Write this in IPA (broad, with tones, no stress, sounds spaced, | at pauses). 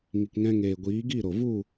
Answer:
ŋ i˨ k ŋ ɛ̃˧ ŋ eː˨ ɡʷ iː˨˦ ɡ i˦˨ ɾ o˨ v u˦˨